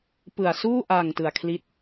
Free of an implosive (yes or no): yes